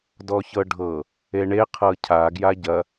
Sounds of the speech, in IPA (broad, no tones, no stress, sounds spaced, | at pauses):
d ɔ ç ɤ ɖʱ ɤ | e ɳ e qʰ ɤ cʰ a ɡ j a ɟ ɐ